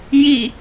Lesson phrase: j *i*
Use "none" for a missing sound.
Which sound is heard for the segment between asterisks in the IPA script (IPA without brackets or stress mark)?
i